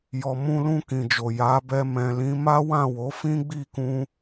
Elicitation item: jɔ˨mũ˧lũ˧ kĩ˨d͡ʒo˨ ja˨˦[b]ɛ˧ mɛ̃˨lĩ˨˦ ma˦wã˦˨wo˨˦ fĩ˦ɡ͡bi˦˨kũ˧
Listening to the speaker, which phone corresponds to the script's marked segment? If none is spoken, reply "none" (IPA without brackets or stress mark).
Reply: b